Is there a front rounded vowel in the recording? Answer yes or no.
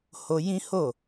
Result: no